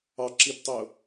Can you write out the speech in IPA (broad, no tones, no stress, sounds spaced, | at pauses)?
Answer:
ɑ ǁ i b tˤ o